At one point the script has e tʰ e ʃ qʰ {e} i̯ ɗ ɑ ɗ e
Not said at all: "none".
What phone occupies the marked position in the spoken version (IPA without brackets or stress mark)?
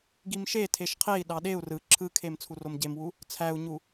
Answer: e